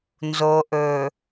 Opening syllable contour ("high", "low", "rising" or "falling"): low